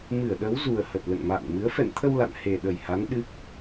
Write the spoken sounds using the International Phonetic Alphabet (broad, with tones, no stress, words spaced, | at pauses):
mɨ˧˩ə̯ɗə˨˦wzu˨˩ə̯hə˨˩t̚ lə̰˧˨nma̰ː˧˨nmɨ˨˦ə̯ fɛ̰˧˨nt̪ʰə˧w la̰˧˨nhe˨˩ɗə˨˩jha˨˦n ɗɨ˦˥k̚